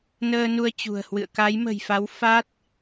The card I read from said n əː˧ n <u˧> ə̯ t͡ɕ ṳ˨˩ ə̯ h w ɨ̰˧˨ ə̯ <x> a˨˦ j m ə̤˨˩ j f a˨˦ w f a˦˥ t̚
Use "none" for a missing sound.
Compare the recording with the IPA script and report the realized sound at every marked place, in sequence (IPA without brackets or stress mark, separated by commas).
u˧, k